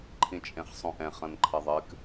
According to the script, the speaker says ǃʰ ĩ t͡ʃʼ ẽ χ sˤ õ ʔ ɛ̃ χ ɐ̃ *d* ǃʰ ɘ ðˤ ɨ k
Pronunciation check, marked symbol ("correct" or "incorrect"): incorrect